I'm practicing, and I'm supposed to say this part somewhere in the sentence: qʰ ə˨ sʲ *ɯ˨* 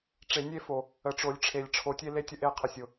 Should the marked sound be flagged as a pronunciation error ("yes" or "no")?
yes